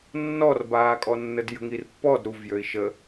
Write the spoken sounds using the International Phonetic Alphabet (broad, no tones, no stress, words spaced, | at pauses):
nːɔrbaːkʼɔnːəd jə̤ŋirpːɔd ɾuvjøi̯ ʃə